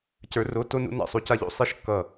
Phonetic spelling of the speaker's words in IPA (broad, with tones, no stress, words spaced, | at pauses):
cə˞˧˥ro˧˥˧ to˥nṵ˧˥ na̰˥˩sˤu˥ca˥ʎo̰˥˩ sˤe˥ʃ kːʌ˥˩